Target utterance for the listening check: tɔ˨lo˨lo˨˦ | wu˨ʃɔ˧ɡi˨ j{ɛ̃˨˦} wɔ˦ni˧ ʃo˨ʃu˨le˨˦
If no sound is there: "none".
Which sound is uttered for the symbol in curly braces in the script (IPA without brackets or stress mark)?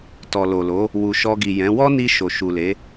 ɛ̃˨˦